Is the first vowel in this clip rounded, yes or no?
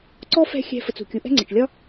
yes